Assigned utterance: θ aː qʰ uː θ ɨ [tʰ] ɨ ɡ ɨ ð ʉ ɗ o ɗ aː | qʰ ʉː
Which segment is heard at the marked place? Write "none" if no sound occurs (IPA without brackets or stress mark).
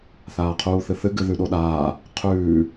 θ